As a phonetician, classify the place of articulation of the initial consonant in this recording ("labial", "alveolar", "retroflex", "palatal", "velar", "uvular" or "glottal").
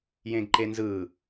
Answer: palatal